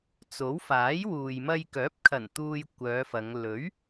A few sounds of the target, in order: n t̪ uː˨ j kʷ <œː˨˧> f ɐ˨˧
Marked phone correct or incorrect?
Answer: correct